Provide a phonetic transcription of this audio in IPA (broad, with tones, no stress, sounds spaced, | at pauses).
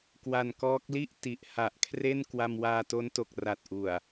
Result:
k w a˧ n k ɔː˦˥ k̚ l i˥˩ ʔ t i˨˩ ʔ h a˨˩ ʔ kʰ r e˥˩ n k w a˧ m w aː˧ t o˦˥ n t o˨˩ k̚ r a˨˩ t̚ ʔ u˨˩ a̯